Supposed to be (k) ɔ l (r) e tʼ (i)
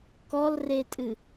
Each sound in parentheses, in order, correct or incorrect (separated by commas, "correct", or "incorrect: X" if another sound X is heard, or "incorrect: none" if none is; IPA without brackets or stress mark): correct, correct, incorrect: ɨ